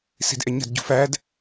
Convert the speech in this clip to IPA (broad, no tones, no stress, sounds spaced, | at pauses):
s i̤ d ʔ ɛ ɲ ə̤ d ɟ ṳ f æ d